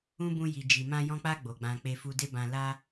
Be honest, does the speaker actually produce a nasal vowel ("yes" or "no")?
yes